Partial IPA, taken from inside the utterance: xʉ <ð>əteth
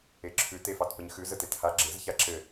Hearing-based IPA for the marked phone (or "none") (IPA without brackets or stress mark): z